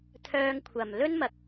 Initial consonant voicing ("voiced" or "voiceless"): voiceless